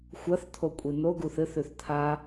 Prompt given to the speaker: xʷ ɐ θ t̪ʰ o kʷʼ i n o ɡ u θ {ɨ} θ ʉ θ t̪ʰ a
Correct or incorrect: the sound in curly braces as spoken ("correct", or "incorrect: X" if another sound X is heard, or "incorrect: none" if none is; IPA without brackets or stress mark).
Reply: correct